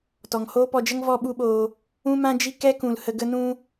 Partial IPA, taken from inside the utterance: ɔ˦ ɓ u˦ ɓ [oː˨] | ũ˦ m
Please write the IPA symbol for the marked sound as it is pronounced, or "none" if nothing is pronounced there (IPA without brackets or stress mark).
oː˧